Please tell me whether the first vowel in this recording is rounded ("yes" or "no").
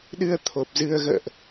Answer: no